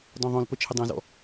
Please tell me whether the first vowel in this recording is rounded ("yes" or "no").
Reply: yes